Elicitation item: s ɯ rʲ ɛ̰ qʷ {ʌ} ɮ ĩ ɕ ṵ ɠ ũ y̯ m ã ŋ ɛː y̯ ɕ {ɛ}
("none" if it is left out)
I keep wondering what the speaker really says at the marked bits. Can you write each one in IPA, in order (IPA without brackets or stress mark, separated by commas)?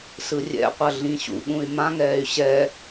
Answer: ʌ, ɛ